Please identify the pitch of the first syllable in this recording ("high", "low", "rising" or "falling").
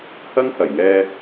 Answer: high